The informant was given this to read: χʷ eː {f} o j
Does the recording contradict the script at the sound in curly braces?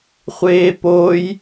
yes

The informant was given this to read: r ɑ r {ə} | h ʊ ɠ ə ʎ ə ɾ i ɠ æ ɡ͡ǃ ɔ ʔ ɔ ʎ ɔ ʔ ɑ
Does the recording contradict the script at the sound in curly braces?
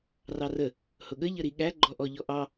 no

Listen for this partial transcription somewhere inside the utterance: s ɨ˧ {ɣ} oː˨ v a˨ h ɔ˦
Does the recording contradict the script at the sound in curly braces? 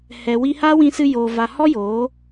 yes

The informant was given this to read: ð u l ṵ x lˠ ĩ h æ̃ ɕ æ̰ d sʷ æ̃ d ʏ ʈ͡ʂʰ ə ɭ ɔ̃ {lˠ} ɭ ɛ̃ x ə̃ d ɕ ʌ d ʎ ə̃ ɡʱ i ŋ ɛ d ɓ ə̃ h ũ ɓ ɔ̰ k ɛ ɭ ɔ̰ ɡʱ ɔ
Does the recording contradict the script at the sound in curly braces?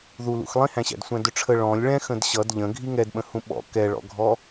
yes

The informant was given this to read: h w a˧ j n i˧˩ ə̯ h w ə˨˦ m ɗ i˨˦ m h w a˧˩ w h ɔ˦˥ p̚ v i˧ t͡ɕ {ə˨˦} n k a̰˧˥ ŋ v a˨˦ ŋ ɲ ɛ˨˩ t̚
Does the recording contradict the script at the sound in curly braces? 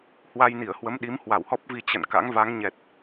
yes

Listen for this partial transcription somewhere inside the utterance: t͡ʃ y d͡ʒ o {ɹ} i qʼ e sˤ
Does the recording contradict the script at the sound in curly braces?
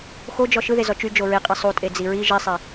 no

